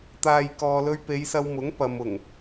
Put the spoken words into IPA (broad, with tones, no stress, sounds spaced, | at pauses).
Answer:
t̪ aː˨ j k ɔː˨ l ɵ˧ ɥ p e˨˧ j s ɐ˧ w m ʊ˨˥ ŋ p ɐ˨ m ʊ˨˩ ŋ